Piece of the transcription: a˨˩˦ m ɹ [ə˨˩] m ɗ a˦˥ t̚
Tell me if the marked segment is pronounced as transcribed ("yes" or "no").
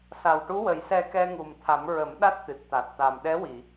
no